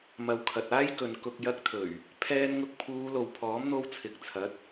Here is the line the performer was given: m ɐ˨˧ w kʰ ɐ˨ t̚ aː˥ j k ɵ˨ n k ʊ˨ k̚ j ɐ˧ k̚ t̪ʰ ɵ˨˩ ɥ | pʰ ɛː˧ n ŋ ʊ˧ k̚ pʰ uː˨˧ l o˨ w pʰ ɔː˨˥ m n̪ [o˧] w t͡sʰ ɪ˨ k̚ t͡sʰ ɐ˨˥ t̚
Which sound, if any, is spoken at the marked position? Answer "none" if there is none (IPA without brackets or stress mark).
o˧